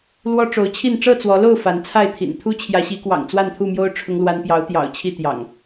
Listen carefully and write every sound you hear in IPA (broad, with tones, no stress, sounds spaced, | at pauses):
l w ɔ˦ ʈ͡ʂ o˨˦ ʊ̯ t͡ɕʰ i˥˨ n ʈ͡ʂ ɤ˥˨ t͡s w ɔ˨˦ l o˥˨ ʊ̯ f a˨˦ n t͡sʰ a˥˨ ɪ̯ t̪ʰ ḭ˨˩ n t̪ʰ u˦ t͡ɕʰ j ä˨˦ ɕ i˨˦ k w ɑ̰˨˩ ŋ t͡s w a˥˨ n t̪ʰ u˥˨ m j o˦ ʊ̯ ʈ͡ʂʰ ʊ˦ ŋ l w a˦ n p j ɑ˨˦ ʊ̯ t̪ j ɑ̰˨˩ ʊ̯ t͡ɕʰ i˥˨ t̪ j ɑ̰˨˩ ŋ